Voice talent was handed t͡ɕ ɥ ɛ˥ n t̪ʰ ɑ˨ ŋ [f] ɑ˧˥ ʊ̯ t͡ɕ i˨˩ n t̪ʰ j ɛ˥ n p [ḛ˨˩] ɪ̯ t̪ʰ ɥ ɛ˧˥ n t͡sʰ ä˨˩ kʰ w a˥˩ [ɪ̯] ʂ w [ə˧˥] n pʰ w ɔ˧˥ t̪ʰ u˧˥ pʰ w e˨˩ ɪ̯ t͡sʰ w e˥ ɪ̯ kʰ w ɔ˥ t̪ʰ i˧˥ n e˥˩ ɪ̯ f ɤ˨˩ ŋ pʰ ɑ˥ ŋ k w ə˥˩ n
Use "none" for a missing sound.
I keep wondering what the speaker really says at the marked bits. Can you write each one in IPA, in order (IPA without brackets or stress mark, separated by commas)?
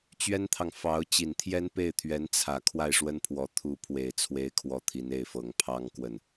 f, e˥˩, ɪ̯, ə˥